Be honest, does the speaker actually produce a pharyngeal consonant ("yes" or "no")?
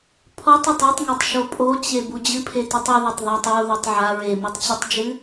yes